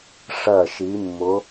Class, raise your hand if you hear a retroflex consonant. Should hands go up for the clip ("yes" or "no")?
yes